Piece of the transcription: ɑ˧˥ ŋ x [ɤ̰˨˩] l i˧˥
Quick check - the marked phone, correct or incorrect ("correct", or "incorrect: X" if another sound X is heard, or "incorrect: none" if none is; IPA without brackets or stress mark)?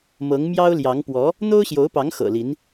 correct